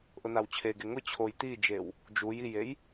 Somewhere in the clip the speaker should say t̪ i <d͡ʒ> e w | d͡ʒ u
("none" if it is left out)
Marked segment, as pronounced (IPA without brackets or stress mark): d͡ʒ